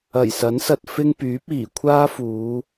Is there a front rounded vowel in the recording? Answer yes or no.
yes